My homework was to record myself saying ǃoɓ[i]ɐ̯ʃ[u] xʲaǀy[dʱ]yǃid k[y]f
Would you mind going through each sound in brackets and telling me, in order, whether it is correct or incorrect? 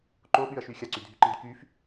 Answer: incorrect, incorrect, correct, correct

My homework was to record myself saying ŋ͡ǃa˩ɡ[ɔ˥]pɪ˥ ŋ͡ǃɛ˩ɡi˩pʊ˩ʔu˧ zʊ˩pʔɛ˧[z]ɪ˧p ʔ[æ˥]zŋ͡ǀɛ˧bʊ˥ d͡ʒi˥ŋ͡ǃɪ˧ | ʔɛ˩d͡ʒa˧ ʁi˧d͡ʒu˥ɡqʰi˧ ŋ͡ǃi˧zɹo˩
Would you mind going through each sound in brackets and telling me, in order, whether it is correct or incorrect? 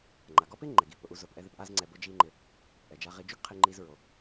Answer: correct, incorrect, incorrect

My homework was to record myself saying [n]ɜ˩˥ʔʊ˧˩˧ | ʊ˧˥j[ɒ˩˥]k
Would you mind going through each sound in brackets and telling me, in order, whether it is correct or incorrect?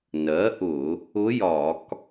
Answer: correct, incorrect

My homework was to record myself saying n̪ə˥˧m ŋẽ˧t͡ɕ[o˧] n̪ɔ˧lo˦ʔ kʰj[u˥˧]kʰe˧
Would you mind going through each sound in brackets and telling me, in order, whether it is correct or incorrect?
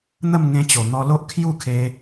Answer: incorrect, correct

